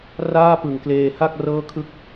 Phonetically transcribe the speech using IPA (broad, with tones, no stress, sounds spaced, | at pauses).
r aː˥˩ p ɯ˨˩ ŋ k l eː˧ h a˥˩ k̚ r ɤː˥˩ kʰ ɯ˥˩ k̚